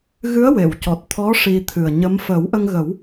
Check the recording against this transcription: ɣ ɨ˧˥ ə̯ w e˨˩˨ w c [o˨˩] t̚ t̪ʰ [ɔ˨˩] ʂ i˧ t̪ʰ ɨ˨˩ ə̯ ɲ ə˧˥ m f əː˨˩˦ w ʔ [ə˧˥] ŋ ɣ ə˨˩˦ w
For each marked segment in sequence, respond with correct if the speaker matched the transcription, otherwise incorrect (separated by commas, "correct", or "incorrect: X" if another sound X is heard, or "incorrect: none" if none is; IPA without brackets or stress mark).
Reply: incorrect: ɔ˨˩, incorrect: ɔ˧˥, incorrect: ə˧